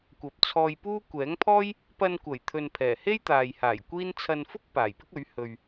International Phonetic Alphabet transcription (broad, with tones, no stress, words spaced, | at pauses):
kʷɐ˨p̚t͡sʰɔː˧jpuː˥ kʷɛː˨˥ŋpʰɔː˥j | pɐ˧nkʷɐ˨˩jt̪ʰɵ˨n pʰɛː˨˩ he˥jt̪aː˨jhaː˨˩j kʷiː˥n t͡sʰɐ˧nfʊ˥k̚ paː˨˩jpɪ˥k̚ɵ˨˥ɥ hɵ˨ɥ